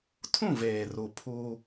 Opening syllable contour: falling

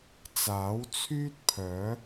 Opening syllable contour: rising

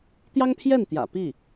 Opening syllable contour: high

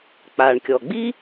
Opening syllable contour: low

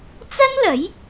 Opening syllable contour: high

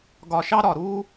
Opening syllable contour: low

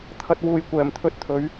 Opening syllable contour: low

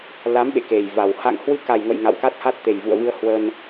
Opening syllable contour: rising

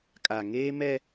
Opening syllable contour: low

